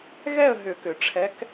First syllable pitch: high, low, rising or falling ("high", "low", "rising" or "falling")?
falling